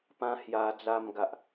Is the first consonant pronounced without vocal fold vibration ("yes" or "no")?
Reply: yes